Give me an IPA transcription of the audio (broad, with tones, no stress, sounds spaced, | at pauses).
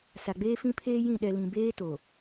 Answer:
s a˨ ɡ͡b eː˦ f ĩ˦ pʰ eː˦ j ĩ˦˨ ɗ ɛ˨ l ĩ˨ b eː˦ t o˨